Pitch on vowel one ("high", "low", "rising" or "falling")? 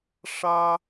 high